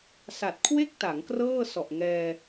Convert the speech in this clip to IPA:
sa˨˩t̚ kʰwe˥˩k̚ta˩˦ŋ krɤː˥˩sɔ˨˩ʔŋɛː˧

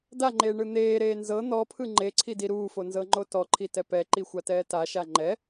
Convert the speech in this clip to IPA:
daŋ͡ǃeːɳɯ n̪eːɾeː nzɤ n̪ɔpʰɯ ŋ͡ǃeǀʰidi ɾuːfonzɤŋ͡ǃo tɔǃʰitɛ pɛǃixʷatɛː taʃa ŋ͡ǃɛ

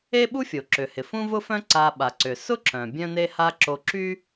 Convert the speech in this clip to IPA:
e˥ɓu˥fʲo˩ ǁʏ˩hɪ˩ fũ˥vʊ˥fœ̃˥ ǀa˧ ɓa˩ǀʏ˩ sʊ˥ǁœ̃˩ bʲœ̃˥ne˥ha˥ ǁo˧ǁy˥

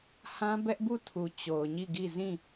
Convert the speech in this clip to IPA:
hã˦bɛ˦ʔbu˦˨ tʰu˨ t͡ɕo˨ʊ̯ɲi˦˨ɡi˦˨ zĩ˦˨

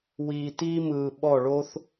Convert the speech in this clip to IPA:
wiː˨ tiː˦mɯː˨ ɓɔ˦˨ɭo˦θ

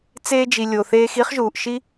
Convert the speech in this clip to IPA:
t͡seː˧d͡ʒi˩ lʲo˩θeː˧xi˥χʒuː˩ʔ ʃi˥

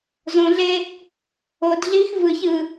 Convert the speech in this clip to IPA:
zõɮe | odɮiːx vɯç ɯ

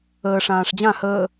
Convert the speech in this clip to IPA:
əːʂãːʂ d͡ʑã həː

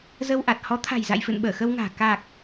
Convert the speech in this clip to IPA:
zə˧wʔa˨˩t̚ hɔ˨˦t̪ʰa̤˨˩jza̰˧˨jfɨ̰˧˨n ɓəː˧˩xə˧wŋa̤ː˨˩ ka˨˩k̚

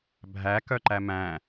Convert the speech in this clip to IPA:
bʱæ kœǃæmæ̃

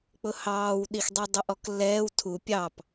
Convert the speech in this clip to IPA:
k͡pʊhɑːwɗixdˤi dˤʊʔɔklːɛːw tʰu pʲɑp

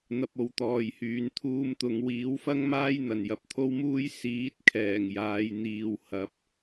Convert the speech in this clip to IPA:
n̪ɐ˧p̚o˨wt̪ɔː˨jhyː˨˧n t̪ʰuː˧mt̪ʊ˨ŋ wiː˨˥wfɐ˥ŋmaː˥j n̪ɐ˨˩njɐ˨˥p̚t̪ʰo˥wmuː˥j siː˨˥t̚kʰɛː˨˩ŋ jaː˨˧jn̪iː˨w hɐ˨˥p̚

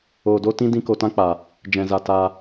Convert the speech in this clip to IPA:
oː˧do˦tĩ˦ dĩ˦ko˧tã˦k͡pa˨ | d͡ʒɛ̃˧za˧ ta˧

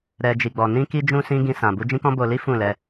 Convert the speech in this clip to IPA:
ɾɛ˦ d͡ʒi˧ɡ͡bɔ˧ nĩ˧ki˧d͡ʒũ˧ sĩ˦ ɡĩ˦sã˧bu˦ d͡ʒĩ˦kɔ̃˦bo˧li˦ fũ˦˨lɛ˧

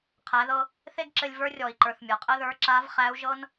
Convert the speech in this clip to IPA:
qʰæ˩˧ðɤ˧ | θe˥ɡǁɘ˧lʲ və˞˧˥rʲɔ˩i̯ǃə˞˩θ mʲɤ˩qʼɘ˥ðə˞˧˥ ǁa˧˥vχæ˧˥u̯ʒɤ˥n

